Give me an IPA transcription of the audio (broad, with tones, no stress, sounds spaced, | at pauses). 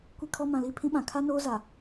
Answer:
kʷ i˦ kʰ ɔ˦ m ã˨ l i˦ pʰ ĩ˦ ɓ ã˨ kʰ a˦ n oː˦ z a˨